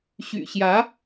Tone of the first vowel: low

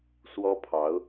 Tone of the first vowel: high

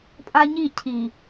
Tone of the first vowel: high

